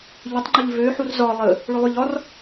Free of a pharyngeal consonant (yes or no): no